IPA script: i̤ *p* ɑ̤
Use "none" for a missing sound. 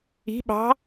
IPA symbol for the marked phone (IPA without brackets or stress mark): ɓ